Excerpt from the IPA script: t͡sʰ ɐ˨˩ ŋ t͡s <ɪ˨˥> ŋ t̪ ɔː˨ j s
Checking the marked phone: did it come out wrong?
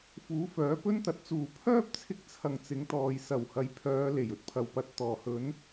no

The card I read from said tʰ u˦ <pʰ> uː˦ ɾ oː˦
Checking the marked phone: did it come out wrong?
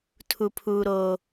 no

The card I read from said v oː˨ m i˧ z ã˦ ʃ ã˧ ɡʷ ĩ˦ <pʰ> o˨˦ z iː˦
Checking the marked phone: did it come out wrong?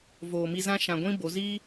yes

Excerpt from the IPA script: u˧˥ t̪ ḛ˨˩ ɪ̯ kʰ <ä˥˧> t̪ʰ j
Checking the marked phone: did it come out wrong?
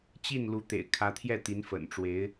yes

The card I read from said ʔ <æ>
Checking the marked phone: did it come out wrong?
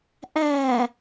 no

